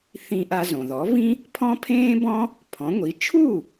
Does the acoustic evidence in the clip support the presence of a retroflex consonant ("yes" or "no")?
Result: no